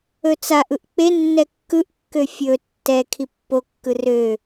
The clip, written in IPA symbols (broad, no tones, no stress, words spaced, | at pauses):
ɵt͡saʔ ɯʔk͡pe nːɛkːɯʔkːø fʲɵ tːɛ kʰipːokːɯ rø